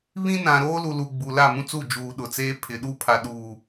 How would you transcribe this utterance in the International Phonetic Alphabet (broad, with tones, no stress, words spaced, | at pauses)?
βĩ˦nã˨ ɾoː˦lu˨lu˨ ɡ͡bu˨la˦˨mũ˦t͡su˦˨ d͡ʒuː˨ ɗʊ˨t͡seː˦ pʰɪ˨ɗu˦ pʰa˨ɗuː˨